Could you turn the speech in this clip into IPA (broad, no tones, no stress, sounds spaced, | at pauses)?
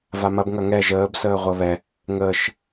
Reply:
v a m ɐ b ŋ ɐ ŋ ɛ ʒ əː b s əː ʁʷ ɐ β ɛ | ŋ əː ʃ